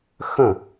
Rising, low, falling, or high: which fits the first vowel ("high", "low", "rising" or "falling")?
falling